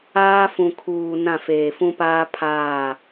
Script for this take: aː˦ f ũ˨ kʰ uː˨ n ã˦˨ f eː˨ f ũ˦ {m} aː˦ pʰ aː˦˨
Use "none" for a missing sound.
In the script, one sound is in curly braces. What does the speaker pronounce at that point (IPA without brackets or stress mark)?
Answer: p